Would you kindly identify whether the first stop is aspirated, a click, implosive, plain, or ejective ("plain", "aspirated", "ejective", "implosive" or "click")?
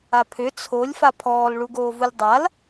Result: aspirated